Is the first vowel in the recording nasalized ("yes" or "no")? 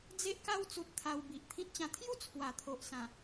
no